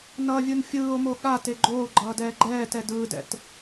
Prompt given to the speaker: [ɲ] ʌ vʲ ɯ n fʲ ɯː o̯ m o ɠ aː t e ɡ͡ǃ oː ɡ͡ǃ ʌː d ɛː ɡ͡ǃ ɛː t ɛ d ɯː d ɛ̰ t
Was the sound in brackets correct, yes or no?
no